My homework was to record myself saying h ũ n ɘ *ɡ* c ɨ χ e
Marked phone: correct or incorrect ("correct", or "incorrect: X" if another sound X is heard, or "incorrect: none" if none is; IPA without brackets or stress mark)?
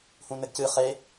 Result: correct